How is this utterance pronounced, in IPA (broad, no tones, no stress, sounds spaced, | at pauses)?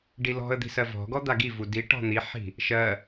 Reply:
ɖ i l ɔ̤ ə̯ d̪ i̤ s ɜ v ɔ̤ ɡ ɔ d̪ a ɡ i v u d i ʈ ɔ̤ n̪ i ħ i̤ | ʃ ɜ